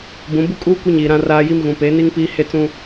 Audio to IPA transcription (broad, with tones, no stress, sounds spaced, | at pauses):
b ũ˨˦ b u˦ kʼ uː˦ kʷ i˦ ɲ iː˨ ɾ ã˦ r aː˦ j i˦ m ɣ ũ˨ p e˨˦ n i˦ ŋ p iː˦ h e˦ t͡s ũ˦